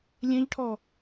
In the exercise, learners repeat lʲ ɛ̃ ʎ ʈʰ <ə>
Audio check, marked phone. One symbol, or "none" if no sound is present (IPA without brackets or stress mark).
ɔ